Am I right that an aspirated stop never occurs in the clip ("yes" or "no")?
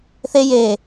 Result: yes